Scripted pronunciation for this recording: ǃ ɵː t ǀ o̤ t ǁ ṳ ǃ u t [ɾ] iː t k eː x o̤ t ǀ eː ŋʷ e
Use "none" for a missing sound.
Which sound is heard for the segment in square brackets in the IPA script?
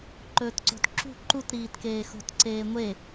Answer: ɾ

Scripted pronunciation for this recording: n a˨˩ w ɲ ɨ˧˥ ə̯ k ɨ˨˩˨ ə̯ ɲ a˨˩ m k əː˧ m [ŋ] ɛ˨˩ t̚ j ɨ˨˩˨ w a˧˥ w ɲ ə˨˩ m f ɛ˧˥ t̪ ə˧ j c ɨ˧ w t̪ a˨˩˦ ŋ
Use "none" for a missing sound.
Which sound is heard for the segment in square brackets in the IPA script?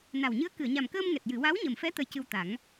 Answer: ŋ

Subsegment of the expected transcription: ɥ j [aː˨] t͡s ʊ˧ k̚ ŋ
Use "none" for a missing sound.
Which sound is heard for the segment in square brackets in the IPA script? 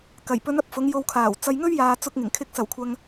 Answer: aː˨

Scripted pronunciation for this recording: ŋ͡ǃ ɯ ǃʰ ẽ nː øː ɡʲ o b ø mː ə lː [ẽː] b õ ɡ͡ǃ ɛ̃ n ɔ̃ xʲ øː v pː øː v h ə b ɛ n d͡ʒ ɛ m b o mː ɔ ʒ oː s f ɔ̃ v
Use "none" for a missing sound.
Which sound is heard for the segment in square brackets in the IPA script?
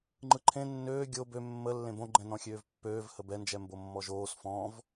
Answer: ẽ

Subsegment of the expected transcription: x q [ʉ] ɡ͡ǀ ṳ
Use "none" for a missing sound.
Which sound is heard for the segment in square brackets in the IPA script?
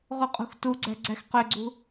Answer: ø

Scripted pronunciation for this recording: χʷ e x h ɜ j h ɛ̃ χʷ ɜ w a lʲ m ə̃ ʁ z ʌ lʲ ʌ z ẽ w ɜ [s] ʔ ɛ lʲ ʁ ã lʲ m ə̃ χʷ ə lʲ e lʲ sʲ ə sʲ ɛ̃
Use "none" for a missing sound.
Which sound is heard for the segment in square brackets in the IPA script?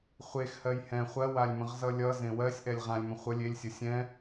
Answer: sʲ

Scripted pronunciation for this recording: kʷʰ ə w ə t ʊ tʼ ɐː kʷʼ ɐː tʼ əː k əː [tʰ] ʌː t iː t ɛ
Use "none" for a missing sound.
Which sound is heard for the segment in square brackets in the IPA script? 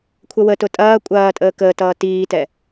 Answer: t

